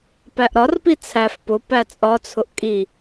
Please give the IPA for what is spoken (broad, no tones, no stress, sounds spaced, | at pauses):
p æ ʔ ɾ ɒ r p i t͡sʰ æ f p ʊ p æ t͡sʼ ɒ t͡sʰ ʊ ʔ kʼ i